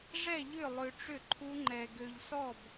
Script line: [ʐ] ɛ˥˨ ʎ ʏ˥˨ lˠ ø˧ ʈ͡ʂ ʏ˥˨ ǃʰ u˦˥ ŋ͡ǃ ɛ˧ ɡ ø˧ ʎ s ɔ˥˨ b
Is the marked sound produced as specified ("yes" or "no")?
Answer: yes